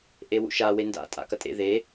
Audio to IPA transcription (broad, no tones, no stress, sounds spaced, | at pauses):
ʔ e w ṵ ʃ a w e n d a̰ tʼ a̰ k ɐ tʼ ḛ ð e